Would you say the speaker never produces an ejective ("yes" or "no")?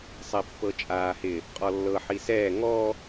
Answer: no